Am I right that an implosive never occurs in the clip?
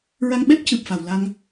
no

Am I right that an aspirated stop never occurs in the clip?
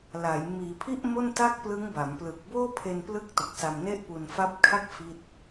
no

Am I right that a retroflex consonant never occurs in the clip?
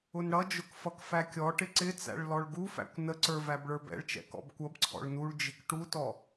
no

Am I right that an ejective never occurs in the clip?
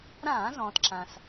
yes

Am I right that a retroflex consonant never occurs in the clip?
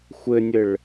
no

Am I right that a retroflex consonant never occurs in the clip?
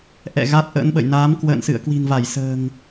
yes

